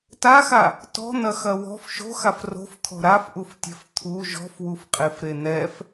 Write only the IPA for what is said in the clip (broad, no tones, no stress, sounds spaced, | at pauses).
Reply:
t a x a | t ɔ̤ n̪ ɐ x ɐ w ɔ̤ f ʃ o̤ x a f r o̤ f t̪ʰ ɔ̤ ɾ a f ʔ u f tʲ ɛ̤ f t̪ʰ u ʒ ɔ̤ f w u f qʼ e f ɾ e n̪ ɛ f